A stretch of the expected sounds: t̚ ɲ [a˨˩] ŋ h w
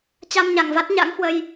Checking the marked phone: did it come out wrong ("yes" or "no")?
yes